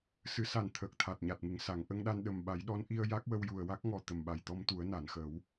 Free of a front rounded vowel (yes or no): yes